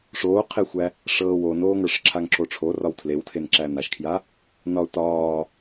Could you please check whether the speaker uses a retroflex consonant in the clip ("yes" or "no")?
yes